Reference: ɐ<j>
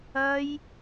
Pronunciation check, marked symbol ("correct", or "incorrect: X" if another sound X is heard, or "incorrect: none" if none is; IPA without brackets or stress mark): correct